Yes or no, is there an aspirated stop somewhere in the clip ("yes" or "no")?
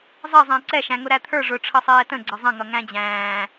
yes